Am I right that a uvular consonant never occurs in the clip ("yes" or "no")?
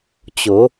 yes